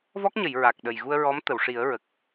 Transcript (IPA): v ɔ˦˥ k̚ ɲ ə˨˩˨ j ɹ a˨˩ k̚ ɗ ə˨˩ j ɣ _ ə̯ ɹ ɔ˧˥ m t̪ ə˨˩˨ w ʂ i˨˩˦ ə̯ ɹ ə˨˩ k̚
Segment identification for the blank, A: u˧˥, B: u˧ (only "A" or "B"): B